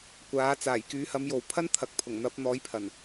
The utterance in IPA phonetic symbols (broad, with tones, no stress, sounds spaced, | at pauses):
kʷ aː˨˥ t͡s aː˨˩ j k yː˨˥ h ɐ˨˥ m j o˨ w pʰ ɐ˥ n t̪ʰ ɐ˨ k̚ pʰ ʊ˨˩ ŋ n̪ ɐ˨˥ p̚ n̪ ɔː˨˥ j pʰ ɐ˨˩ n